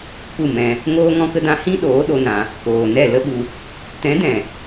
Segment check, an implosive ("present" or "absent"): present